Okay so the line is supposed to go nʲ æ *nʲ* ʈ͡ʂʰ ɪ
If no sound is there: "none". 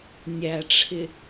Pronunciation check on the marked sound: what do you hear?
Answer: none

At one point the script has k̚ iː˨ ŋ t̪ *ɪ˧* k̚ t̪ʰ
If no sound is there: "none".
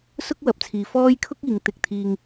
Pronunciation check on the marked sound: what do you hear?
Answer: ɪ˧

